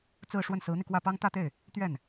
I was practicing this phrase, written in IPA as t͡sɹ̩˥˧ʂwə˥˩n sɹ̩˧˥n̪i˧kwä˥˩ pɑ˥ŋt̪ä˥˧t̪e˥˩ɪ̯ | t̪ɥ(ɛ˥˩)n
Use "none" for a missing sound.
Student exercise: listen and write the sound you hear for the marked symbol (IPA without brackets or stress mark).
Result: ɛ˥˩